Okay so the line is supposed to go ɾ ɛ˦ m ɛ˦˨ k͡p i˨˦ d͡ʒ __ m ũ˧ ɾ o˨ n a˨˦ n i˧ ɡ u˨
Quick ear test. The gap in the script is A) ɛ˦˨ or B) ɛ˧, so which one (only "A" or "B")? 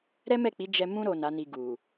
B